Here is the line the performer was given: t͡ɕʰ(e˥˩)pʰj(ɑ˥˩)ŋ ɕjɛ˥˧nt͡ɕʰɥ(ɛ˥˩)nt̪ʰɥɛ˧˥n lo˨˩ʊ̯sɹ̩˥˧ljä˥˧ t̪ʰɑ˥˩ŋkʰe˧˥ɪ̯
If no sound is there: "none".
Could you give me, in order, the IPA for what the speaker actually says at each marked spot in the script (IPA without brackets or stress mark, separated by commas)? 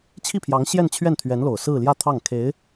i˥˩, ɑ˧˥, ɛ˥˩